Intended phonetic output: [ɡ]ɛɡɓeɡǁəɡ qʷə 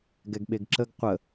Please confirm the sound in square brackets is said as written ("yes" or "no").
yes